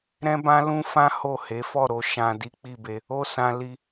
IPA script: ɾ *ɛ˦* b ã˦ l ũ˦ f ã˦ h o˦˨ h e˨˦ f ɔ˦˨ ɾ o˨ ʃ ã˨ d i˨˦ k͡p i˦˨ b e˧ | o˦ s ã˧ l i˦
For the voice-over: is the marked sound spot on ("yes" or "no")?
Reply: no